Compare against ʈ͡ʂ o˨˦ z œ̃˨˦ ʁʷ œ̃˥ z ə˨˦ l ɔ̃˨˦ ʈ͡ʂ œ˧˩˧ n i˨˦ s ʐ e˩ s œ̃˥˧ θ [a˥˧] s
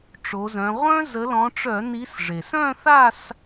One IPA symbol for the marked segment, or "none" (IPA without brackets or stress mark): a˥˧